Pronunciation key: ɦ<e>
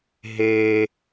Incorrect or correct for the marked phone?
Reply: correct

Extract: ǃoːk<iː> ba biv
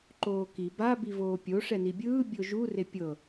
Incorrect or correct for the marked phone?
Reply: incorrect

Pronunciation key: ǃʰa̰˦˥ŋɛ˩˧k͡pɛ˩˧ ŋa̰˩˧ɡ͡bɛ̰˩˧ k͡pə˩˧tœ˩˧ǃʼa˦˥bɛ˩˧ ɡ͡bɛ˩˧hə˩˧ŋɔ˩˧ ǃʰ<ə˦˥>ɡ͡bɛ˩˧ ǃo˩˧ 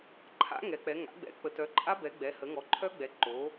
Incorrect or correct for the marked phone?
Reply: incorrect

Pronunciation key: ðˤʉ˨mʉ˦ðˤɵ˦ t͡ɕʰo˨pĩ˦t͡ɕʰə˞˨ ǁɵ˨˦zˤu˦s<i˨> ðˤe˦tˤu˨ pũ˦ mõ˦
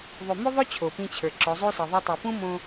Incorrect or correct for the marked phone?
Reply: correct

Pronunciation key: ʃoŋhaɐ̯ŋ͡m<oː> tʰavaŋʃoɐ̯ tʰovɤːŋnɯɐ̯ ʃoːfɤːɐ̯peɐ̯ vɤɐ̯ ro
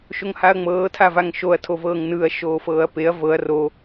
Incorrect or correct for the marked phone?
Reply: incorrect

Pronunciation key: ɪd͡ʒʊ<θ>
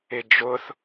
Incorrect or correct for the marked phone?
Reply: correct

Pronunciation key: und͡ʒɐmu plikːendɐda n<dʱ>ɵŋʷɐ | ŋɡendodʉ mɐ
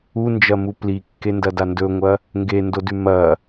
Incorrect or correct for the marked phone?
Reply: incorrect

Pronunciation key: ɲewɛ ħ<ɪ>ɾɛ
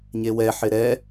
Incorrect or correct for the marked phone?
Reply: correct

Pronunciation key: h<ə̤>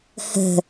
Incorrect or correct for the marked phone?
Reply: correct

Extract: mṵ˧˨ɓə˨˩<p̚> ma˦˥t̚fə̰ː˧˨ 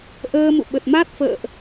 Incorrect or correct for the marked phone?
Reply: incorrect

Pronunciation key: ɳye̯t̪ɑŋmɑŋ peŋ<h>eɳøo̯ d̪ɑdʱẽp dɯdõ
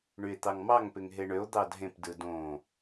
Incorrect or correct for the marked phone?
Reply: incorrect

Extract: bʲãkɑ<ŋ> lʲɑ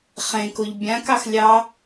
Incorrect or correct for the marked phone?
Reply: incorrect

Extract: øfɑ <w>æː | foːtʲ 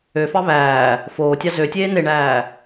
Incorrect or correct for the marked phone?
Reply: incorrect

